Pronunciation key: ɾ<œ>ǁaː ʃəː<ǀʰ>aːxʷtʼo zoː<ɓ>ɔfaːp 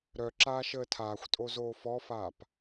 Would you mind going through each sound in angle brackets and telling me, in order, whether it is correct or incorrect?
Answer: correct, incorrect, incorrect

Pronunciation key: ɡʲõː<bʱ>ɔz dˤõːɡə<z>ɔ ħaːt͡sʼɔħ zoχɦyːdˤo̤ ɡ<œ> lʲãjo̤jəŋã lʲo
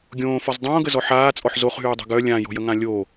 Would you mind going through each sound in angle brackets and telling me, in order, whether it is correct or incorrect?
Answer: incorrect, correct, correct

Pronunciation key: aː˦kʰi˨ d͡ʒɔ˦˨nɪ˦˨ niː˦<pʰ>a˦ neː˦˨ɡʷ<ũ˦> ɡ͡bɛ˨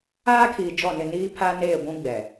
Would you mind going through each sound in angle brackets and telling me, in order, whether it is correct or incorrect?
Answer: correct, correct

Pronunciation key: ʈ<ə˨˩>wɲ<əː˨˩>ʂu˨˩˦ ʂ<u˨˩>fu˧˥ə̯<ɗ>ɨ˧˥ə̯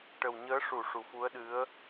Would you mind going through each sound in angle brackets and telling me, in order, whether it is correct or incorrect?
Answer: correct, incorrect, correct, correct

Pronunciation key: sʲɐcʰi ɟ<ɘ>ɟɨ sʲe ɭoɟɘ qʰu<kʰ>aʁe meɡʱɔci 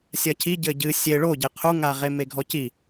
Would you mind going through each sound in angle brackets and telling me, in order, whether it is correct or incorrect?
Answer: correct, incorrect

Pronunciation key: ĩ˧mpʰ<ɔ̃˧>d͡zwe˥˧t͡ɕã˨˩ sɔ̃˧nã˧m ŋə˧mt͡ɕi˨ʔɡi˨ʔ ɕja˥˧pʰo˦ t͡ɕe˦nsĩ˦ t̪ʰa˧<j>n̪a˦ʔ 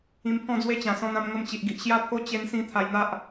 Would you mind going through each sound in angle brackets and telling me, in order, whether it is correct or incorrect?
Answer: incorrect, correct

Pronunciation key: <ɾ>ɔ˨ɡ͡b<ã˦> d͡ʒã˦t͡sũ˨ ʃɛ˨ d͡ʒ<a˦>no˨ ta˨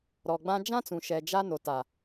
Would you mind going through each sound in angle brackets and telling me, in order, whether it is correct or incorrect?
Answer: correct, correct, correct

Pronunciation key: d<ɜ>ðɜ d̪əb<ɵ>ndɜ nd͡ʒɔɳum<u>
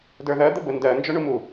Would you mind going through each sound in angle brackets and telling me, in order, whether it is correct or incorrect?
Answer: incorrect, incorrect, correct

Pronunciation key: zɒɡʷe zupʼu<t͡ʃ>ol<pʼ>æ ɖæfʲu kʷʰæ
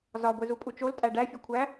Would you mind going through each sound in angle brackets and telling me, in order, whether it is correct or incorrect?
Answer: correct, incorrect

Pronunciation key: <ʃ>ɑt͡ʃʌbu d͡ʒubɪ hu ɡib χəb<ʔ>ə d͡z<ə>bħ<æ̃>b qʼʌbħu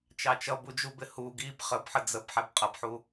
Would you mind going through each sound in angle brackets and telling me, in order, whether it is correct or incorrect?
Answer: incorrect, incorrect, correct, incorrect

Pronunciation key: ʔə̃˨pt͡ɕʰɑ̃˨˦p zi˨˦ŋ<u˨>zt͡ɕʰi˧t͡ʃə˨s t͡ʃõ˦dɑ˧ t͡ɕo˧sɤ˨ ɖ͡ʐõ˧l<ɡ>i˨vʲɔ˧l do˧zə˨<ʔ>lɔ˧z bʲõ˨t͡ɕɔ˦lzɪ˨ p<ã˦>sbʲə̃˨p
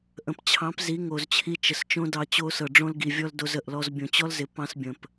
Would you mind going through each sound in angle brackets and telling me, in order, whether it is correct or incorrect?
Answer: incorrect, correct, correct, incorrect

